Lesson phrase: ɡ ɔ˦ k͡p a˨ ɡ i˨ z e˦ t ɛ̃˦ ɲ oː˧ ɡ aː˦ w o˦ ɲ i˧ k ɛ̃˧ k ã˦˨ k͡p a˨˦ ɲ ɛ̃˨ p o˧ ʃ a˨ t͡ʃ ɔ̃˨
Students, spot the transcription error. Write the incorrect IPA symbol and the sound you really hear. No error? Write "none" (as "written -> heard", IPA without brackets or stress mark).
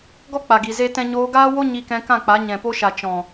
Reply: none